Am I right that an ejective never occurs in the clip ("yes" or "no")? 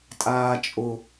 no